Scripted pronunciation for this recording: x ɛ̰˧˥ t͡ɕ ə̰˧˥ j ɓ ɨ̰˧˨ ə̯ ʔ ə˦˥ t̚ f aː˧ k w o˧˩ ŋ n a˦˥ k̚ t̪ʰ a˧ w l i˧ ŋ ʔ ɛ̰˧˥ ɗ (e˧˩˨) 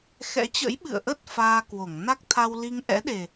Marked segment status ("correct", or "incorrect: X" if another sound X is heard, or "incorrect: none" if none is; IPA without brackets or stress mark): incorrect: e˨˩